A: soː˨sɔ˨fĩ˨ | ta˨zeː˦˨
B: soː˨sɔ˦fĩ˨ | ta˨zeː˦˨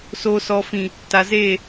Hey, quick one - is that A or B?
A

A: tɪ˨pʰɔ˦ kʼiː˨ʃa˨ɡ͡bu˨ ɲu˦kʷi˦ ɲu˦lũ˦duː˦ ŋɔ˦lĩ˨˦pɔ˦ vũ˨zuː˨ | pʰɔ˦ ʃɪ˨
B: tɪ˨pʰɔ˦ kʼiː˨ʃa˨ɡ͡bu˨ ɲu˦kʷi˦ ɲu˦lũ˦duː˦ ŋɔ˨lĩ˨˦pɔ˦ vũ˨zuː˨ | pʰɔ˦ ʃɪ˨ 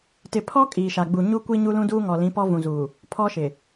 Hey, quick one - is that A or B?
B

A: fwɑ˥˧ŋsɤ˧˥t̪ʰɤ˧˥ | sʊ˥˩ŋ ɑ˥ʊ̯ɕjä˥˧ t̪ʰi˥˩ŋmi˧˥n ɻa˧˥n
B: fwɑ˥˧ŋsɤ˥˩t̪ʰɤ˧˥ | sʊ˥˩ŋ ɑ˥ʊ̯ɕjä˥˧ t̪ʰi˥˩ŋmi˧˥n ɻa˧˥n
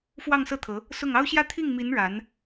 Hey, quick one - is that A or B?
B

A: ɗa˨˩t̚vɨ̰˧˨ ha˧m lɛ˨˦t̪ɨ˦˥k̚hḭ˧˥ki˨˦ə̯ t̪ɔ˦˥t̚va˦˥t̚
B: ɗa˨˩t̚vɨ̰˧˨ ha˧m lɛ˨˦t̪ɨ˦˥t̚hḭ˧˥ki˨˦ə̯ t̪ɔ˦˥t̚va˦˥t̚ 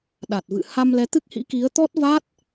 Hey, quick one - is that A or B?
A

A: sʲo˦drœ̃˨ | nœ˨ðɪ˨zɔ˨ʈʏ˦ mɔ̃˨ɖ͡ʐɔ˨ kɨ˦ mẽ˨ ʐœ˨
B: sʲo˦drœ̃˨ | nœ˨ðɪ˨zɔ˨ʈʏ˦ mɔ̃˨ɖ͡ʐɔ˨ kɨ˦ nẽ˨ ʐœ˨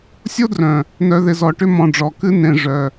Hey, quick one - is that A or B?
B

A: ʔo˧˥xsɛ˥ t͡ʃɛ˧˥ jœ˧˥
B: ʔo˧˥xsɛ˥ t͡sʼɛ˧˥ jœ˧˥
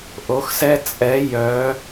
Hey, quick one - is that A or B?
B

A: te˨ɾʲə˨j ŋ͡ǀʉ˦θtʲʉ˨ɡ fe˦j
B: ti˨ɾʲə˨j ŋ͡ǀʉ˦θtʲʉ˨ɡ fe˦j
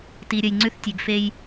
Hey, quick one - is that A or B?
B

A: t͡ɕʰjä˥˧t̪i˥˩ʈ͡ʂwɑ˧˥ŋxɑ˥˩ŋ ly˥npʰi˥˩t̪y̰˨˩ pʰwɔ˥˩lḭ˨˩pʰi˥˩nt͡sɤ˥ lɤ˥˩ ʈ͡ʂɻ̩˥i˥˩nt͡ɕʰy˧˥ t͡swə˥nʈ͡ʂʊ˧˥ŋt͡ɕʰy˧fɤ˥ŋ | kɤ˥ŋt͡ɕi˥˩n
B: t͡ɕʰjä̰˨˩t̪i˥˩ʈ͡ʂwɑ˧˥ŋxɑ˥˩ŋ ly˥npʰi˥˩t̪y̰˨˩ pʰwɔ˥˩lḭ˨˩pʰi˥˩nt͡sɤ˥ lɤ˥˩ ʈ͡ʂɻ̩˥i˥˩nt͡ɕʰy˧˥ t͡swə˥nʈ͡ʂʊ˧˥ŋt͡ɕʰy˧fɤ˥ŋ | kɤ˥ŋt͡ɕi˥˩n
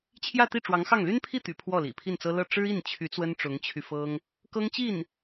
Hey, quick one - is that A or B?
A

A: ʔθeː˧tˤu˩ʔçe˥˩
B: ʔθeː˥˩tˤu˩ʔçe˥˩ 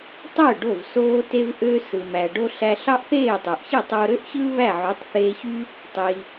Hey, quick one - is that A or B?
B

